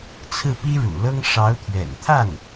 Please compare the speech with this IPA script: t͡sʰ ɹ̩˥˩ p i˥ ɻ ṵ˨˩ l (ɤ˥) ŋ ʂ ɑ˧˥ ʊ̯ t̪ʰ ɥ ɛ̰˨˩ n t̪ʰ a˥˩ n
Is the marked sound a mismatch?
no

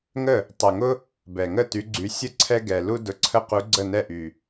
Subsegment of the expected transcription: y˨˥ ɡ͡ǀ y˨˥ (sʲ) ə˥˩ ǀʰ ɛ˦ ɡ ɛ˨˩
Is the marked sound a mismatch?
no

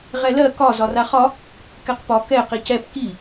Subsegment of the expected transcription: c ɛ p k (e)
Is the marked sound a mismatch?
yes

